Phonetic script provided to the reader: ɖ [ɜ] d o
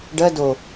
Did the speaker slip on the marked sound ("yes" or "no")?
no